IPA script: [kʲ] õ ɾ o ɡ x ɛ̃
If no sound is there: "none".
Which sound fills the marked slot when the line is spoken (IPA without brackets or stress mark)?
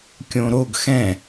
kʲ